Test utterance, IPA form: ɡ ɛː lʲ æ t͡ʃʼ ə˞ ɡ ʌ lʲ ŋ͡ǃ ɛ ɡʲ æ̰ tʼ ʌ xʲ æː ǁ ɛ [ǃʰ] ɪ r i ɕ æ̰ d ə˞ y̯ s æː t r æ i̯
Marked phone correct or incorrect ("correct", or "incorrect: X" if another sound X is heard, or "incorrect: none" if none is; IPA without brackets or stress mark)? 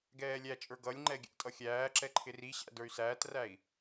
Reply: correct